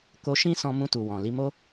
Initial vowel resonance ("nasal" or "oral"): oral